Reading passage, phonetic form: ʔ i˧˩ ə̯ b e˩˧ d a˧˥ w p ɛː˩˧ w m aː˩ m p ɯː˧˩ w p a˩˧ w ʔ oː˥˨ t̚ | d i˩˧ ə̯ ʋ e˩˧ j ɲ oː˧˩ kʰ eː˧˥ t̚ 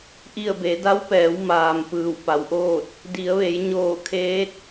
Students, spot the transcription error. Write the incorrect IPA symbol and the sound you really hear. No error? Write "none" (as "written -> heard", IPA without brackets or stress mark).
none